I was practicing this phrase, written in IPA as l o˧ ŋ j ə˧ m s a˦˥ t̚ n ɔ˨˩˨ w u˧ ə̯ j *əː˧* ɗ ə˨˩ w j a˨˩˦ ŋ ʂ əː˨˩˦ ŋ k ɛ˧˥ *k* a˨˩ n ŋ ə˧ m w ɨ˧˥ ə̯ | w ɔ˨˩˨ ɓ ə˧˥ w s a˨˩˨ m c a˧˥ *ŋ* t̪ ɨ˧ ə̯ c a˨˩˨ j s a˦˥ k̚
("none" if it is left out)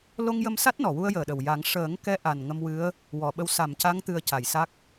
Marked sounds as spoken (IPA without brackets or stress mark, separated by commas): əː˨˩, ʔ, ŋ